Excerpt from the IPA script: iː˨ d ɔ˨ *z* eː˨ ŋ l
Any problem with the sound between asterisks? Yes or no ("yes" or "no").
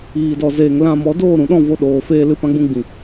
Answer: no